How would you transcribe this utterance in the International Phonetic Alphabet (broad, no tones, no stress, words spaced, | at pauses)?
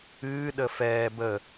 ɨːɗə fɛː bə